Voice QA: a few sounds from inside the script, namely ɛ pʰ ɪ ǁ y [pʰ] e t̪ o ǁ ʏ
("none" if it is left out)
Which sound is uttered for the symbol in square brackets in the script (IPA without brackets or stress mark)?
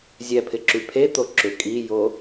pʰ